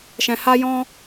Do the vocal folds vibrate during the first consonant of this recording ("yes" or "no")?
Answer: no